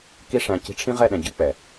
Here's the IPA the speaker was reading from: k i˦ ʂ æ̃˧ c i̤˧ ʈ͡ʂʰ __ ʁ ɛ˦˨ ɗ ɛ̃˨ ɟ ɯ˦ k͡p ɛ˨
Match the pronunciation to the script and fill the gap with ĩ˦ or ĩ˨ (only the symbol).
ĩ˦